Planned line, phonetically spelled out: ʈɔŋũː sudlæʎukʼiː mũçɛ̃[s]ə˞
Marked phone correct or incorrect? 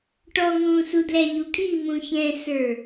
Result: correct